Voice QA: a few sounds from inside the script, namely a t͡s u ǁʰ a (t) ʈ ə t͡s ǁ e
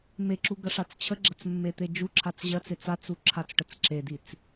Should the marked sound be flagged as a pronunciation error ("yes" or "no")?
yes